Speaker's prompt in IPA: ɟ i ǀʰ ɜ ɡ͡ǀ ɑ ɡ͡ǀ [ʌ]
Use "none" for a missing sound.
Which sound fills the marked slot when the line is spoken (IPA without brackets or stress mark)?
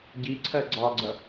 ʌ